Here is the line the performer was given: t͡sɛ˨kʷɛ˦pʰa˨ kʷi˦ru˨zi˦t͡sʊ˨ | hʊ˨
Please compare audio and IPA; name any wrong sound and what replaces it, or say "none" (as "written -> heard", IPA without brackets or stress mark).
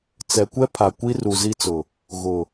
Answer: h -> ɣ